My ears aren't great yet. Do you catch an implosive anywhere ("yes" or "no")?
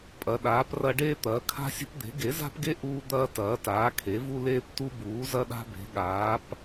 yes